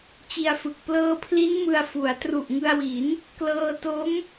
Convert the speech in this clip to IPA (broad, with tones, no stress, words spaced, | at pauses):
t͡ɕi˧a̯fɯ˨˩k̚ plɤː˧pʰli˦˥n mɯ˧a̯fu˩˦a̯ tru˨˩ʔŋɯ˧a̯wi˩˦n | klɤː˧ to˦˥m